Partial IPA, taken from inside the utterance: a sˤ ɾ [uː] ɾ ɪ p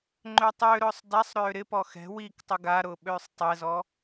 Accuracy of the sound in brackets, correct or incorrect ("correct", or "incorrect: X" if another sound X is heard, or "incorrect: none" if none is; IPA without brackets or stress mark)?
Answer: incorrect: øː